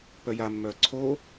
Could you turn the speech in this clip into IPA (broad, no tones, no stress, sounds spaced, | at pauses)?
p œ j a mː œː ǀʰ o